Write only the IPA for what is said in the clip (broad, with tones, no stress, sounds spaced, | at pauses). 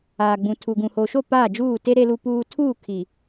aː˨ ɡ͡b ũ˨ tʰ u˨ ɡ ũ˨ h o˨ ʃ o˦˨ p aː˦˨ d͡ʒ uː˦˨ t e˦ ɾ e˦ l u˦ p uː˦ tʰ uː˦˨ kʰ i˨